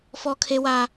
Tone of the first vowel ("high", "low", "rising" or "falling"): high